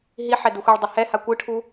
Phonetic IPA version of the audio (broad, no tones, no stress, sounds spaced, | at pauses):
ɦ i ħ ɛ d u xʷ i ɭ dˤ ɛ h ɛ h a kʷ ɯ ʈʰ u